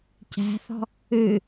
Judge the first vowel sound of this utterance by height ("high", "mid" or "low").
low